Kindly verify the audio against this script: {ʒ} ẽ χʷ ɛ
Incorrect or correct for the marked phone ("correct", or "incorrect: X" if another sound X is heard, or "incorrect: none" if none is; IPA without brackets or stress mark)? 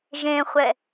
correct